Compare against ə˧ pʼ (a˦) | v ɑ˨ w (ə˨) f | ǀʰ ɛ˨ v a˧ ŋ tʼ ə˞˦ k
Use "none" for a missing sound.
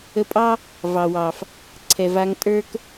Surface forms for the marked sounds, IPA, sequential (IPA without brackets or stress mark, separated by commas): ɑ˦, ɑ˨